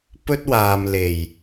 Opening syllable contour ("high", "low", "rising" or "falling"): high